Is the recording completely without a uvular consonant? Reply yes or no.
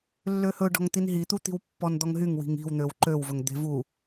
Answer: yes